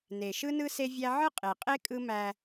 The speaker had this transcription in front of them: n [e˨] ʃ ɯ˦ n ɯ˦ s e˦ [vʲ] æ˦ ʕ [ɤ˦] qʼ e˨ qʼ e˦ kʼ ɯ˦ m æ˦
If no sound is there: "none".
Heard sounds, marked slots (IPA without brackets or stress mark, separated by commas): e˨, vʲ, ɯ˦